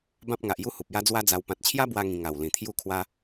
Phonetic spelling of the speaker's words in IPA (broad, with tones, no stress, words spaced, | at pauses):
bã˦p̚ŋa˨ʔju˦ hu˨p̚ja˦d͡zwa˦d͡za˧w pã˨t̚t͡ɕʰja˦bwa˧ ŋĩ˧ ŋa˨˩w lĩ˨˩t̪ʰju˦kʰwa˦